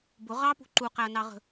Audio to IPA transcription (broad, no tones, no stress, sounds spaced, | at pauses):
b ʊ ʁ ɑ p ṳ ǃ u q æ ɐ̯ n ɑ ʁ ə̤